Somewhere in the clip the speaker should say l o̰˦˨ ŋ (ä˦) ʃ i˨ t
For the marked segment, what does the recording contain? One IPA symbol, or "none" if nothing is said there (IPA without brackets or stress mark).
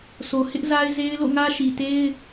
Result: ä˦